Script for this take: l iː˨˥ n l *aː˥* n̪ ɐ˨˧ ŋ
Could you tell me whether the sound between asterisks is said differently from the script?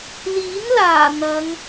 yes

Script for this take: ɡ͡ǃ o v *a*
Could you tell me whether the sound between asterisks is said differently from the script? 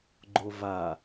no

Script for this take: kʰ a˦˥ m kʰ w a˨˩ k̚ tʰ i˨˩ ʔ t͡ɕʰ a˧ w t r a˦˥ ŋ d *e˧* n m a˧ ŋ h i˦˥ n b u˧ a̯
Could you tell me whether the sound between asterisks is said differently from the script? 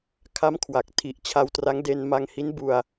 no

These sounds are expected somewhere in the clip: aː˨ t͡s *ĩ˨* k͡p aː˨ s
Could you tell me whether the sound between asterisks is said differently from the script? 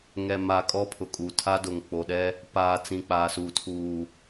no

